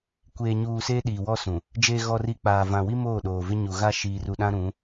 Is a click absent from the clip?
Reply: yes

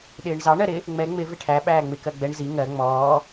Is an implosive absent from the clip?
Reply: no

